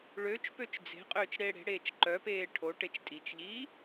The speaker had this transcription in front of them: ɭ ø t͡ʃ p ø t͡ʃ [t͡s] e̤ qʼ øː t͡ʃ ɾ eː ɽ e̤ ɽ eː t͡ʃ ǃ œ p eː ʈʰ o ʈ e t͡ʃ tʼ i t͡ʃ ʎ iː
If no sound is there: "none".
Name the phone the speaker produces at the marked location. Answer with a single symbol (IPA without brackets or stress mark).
d͡z